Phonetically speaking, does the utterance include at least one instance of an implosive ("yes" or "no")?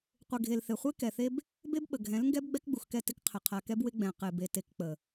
yes